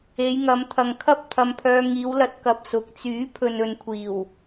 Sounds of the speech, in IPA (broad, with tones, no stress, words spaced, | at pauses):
e˨˧jŋɐ˨˧mt̪ʰɐ˨ŋkʰɐ˥p̚ t̪ʰɐ˧mpʰœː˧ ŋiː˨˧wlɐ˧t̚kɐ˨p̚ sʊ˨˥k̚ t͡syː˨˥pʰɵ˨n ɵ˨˧nkʷʰiː˨˩w